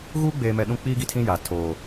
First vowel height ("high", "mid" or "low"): high